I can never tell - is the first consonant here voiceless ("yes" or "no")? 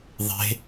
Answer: no